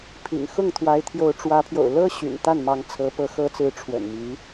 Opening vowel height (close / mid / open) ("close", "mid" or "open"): close